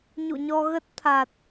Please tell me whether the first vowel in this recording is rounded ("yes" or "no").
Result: yes